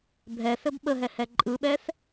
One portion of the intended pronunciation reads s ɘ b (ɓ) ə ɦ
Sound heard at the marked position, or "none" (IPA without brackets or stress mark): ɓ